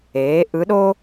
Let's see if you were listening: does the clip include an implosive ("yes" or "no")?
yes